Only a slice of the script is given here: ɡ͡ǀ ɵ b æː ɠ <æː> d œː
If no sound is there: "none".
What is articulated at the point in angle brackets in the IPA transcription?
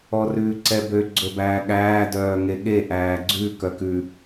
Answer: æː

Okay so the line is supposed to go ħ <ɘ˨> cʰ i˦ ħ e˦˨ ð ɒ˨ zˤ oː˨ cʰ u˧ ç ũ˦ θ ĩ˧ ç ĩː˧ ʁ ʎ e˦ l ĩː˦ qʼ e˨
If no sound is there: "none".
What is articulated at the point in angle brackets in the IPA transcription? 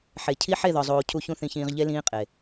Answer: e˨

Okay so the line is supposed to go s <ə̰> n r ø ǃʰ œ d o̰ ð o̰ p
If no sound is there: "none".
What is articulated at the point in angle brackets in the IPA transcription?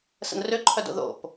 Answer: ə̰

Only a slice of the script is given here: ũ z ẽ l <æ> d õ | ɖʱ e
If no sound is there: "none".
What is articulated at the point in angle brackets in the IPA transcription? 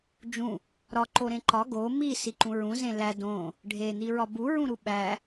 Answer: æ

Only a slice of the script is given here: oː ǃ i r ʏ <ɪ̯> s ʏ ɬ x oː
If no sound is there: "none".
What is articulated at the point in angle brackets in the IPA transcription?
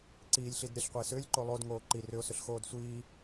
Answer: ʊ̯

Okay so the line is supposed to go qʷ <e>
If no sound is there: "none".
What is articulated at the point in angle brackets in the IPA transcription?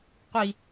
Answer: i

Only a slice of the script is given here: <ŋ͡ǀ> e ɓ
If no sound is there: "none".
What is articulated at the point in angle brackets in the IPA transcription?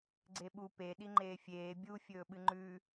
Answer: ɡ͡ǀ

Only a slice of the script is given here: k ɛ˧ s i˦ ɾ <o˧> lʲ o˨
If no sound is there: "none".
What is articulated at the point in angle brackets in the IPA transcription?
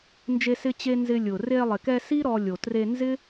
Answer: ɔ˧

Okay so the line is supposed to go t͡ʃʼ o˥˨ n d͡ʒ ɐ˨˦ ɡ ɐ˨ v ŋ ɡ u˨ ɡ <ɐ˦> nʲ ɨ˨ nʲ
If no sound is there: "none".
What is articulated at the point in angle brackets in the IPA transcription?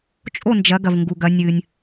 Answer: ɐ˨˦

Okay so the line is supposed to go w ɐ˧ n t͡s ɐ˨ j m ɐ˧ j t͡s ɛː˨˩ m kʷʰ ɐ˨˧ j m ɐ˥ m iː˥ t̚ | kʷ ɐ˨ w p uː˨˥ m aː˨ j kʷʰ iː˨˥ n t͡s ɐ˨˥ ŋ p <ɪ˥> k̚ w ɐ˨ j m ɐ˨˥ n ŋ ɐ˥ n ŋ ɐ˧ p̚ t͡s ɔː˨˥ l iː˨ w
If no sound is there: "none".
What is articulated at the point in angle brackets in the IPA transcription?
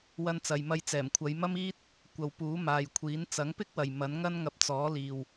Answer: ɪ˥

